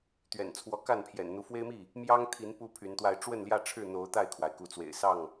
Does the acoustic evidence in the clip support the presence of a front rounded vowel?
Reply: yes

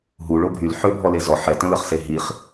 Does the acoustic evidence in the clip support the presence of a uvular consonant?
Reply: yes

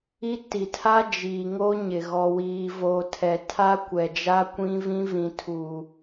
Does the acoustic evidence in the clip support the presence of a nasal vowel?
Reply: yes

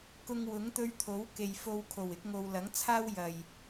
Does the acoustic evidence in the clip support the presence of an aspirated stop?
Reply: yes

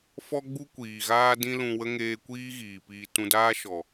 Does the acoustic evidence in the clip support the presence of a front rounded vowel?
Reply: no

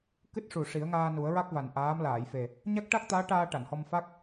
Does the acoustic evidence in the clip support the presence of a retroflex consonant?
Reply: yes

